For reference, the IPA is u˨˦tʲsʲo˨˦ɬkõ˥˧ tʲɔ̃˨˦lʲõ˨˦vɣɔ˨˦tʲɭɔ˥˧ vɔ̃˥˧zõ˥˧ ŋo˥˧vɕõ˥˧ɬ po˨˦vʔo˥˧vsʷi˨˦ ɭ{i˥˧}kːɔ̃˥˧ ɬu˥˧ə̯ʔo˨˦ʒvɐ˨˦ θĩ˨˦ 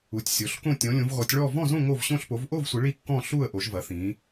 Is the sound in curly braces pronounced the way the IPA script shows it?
yes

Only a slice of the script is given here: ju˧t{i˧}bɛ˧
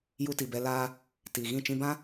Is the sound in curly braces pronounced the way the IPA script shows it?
no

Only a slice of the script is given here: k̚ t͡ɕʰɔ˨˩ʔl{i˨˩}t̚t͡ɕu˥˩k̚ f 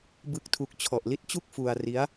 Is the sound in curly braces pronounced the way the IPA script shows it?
no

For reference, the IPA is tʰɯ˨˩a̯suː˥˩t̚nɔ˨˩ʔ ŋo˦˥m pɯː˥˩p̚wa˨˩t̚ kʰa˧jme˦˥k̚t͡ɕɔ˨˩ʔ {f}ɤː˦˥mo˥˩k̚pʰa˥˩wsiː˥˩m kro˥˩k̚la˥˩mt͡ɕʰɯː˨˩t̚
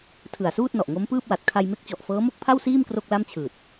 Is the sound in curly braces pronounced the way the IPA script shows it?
yes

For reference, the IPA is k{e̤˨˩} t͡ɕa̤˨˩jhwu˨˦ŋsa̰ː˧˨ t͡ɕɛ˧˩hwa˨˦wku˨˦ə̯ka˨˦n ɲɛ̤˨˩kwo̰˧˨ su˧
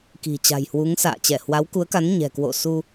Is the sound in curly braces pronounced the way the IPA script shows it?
no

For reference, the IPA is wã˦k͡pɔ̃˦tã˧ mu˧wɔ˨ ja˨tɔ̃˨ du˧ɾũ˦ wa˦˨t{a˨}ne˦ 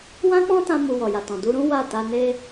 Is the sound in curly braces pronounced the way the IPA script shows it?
no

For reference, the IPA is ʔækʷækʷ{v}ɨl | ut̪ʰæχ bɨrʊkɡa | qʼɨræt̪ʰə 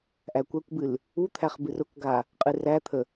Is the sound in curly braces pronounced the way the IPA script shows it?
no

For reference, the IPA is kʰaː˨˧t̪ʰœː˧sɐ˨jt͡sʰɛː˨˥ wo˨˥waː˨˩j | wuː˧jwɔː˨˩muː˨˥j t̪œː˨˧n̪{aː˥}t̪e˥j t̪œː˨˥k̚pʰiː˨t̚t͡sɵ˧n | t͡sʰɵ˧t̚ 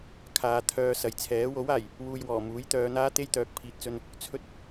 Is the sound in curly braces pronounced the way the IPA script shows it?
yes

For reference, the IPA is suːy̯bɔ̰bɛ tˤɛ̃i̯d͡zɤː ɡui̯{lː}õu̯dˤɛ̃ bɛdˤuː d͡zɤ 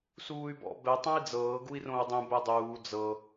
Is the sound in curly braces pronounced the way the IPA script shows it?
no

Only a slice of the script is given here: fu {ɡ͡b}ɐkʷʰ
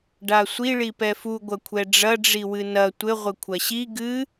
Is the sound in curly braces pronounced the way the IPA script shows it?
no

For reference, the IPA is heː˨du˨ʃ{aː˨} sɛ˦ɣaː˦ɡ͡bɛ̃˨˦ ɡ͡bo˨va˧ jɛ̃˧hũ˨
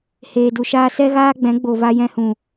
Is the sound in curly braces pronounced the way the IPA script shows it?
no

